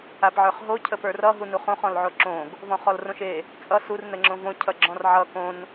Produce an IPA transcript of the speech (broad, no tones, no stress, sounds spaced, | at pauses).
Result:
a p ʕ ə˞ χ ɦ o cʰ ə p ə˞ r ʌ ɦ u n u χ õ χ ɔ̃ l ʕ o ǁ õ ɡ | v ɔ̃ χ ɔ l r õ ʃ e | t͡sʼ ʌ s u r n ə ŋ͡ǁ õ v õ cʰ ʌ ɡ͡ǁ ɔ̃ r ʕ ʌ k õ n